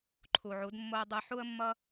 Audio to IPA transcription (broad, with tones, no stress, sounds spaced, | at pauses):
ǃʰ u˨ ʕ u˨˦ d mː o˦ ə̯ dˤ ɯ˧ ħ u˦ ə̯ mː ʌ˦